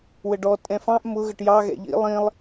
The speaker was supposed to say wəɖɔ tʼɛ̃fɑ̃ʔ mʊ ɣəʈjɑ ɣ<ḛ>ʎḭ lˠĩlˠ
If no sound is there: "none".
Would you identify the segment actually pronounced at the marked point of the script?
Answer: ɛ̰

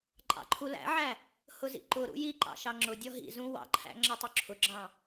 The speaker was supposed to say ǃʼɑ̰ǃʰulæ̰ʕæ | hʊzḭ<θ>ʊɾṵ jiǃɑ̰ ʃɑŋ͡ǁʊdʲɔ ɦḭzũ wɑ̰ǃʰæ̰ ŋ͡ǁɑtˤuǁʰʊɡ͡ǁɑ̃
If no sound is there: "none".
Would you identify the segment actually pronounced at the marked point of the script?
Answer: ǃ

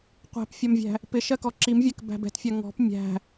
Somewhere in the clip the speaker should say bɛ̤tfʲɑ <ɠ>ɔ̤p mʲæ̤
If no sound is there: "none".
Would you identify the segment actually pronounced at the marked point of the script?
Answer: ŋ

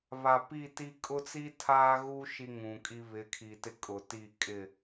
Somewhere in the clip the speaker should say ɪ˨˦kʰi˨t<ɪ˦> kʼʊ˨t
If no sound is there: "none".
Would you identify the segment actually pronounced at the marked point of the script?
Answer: ɪ˦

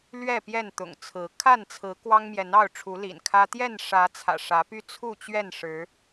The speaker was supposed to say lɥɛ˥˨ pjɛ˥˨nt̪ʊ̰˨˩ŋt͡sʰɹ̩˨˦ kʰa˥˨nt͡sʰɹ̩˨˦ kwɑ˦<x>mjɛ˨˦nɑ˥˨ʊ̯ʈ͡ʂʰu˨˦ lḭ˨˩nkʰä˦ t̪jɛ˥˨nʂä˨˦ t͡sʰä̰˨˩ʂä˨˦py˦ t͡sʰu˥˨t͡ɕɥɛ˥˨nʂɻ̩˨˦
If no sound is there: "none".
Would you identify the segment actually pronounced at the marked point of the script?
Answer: ŋ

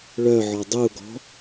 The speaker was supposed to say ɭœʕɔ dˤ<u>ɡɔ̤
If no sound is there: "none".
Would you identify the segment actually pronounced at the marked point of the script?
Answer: u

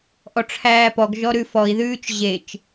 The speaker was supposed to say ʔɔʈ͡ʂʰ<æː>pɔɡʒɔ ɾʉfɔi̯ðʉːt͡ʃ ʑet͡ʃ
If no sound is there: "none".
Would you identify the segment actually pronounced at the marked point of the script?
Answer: æː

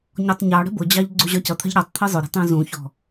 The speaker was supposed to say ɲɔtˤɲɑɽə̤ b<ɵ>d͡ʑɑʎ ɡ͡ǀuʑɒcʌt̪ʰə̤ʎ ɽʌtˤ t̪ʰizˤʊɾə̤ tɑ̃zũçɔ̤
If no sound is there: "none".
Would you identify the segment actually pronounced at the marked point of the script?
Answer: ʊ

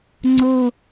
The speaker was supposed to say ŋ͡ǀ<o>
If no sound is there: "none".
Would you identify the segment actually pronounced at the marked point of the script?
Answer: o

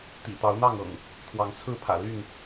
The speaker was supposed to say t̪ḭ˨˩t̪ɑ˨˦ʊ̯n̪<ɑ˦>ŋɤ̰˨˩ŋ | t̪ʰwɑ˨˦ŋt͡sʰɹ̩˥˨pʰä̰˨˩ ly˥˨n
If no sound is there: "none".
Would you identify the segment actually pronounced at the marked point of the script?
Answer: ɑ˥˨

